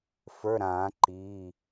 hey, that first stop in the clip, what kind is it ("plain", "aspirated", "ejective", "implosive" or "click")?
click